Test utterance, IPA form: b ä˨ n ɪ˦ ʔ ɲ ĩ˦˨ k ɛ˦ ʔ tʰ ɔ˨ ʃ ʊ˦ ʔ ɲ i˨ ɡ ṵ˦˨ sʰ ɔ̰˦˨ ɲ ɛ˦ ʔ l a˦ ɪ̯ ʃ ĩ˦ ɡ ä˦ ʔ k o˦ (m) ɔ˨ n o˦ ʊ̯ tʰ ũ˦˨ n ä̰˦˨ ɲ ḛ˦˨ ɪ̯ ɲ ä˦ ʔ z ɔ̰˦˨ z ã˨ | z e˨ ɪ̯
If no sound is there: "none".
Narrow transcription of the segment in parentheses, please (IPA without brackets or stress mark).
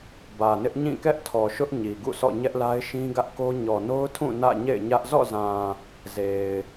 ɲ